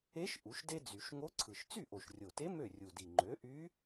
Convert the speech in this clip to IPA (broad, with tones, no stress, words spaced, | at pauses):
e˧˥ʃ ʔu˩˥ʃde˥d͡zy˨˩˦ʃ ŋo˧˥ǀʰɯ˨˩ʃ t͡sy˥˩ʔo˨˩ʃrʲo˨˩te˧˥ mø˥˩rʲu˨˩di˨˩ ŋ͡ǃø˩˥ʔy˧˥